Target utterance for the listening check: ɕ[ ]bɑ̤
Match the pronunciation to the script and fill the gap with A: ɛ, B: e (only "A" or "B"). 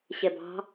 A